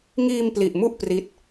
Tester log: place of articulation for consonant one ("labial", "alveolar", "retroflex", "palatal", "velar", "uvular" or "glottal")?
velar